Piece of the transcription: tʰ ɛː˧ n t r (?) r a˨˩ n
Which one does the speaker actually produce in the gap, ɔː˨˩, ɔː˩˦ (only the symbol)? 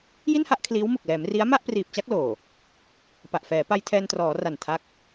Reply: ɔː˩˦